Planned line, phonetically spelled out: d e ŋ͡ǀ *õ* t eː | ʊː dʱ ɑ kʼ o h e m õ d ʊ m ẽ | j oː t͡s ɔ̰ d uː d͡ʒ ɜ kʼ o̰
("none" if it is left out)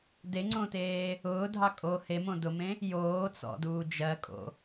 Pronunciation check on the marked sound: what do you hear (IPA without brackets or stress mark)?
õ